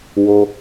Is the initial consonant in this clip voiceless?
no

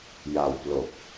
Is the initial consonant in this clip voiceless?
no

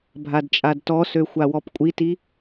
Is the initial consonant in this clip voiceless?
no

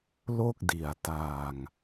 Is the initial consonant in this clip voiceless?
no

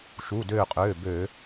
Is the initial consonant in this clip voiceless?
yes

